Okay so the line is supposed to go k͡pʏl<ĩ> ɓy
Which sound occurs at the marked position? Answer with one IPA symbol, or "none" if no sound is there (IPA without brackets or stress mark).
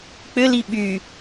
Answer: i